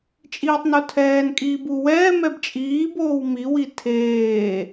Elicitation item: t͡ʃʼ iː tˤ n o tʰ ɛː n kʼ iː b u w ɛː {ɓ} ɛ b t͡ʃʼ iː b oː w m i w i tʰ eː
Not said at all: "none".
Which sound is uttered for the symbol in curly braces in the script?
m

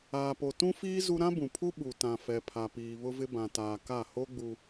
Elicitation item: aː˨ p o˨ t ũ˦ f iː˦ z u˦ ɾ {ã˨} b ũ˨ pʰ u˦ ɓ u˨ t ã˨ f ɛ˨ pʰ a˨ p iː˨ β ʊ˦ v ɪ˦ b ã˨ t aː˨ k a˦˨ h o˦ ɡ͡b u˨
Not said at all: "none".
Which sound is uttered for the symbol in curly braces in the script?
ã˦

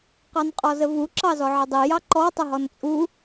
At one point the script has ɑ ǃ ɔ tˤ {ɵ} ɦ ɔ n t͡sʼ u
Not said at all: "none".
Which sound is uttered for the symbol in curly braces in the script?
ə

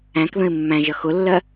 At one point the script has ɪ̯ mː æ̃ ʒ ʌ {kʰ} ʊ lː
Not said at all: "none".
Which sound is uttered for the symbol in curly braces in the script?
x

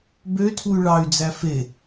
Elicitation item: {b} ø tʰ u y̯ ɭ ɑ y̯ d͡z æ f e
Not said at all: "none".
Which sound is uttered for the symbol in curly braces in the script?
b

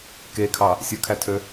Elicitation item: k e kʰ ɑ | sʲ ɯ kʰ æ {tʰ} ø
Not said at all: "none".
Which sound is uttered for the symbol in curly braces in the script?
tʰ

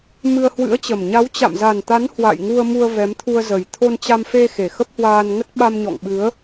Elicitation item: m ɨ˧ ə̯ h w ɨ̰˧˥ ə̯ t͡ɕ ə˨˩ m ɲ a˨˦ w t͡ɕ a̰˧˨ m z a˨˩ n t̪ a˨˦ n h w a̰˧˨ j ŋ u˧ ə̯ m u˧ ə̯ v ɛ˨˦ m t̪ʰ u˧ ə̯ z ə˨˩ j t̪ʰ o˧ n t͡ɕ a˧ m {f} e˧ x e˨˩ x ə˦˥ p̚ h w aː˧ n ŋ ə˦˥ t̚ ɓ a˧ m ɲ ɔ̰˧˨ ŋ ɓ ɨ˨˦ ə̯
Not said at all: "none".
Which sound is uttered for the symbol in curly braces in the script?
f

